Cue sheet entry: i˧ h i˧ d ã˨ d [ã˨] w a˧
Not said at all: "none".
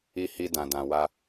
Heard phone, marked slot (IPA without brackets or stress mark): ã˨